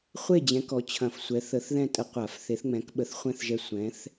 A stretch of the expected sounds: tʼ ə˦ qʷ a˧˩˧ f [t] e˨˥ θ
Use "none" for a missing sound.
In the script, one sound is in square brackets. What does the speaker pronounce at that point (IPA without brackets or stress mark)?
θ